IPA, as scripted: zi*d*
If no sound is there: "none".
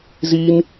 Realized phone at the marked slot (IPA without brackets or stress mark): n